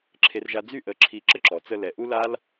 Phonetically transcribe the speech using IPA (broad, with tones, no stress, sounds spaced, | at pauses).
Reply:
ǁʰ e˦ r ʒ a˦ d͡z y˧ ʔ ə˨ ǁʰ i˧ ǁ ə˦ ǁ ɔ˨ t͡s ə˧ l ɛ˨ ʔ u˦ l a˦ l